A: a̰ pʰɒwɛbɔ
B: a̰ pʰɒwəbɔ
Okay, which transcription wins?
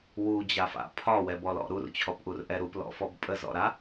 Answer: A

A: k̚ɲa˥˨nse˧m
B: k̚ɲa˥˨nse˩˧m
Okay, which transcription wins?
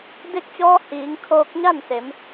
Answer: B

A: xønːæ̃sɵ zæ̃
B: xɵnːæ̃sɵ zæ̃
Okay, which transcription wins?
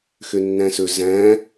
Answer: A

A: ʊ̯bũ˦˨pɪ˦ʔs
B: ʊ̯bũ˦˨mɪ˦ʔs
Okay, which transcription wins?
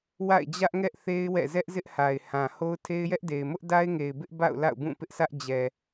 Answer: A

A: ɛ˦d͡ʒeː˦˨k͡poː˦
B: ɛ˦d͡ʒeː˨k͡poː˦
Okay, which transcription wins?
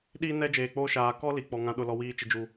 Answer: B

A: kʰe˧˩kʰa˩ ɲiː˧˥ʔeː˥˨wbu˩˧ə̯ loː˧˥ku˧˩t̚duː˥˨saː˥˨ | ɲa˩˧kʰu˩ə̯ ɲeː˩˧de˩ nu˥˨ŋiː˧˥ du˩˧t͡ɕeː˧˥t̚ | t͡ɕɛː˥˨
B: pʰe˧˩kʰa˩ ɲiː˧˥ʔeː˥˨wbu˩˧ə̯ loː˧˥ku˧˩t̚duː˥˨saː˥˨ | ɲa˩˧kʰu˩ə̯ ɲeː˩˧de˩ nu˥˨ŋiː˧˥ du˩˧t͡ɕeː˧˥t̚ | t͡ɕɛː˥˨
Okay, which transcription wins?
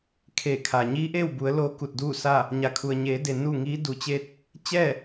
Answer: A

